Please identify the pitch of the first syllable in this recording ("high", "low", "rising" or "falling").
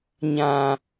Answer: low